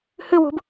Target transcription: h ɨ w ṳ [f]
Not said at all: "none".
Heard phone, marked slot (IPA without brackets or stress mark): b